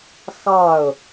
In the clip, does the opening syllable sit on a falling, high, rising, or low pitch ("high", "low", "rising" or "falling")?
falling